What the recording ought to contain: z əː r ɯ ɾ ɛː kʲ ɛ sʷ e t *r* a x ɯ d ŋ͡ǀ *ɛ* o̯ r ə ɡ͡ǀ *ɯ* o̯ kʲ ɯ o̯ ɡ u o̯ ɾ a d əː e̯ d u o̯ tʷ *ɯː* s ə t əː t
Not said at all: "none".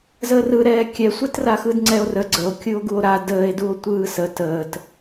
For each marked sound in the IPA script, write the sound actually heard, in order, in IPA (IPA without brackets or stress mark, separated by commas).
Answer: r, ɛ, ə, ɯː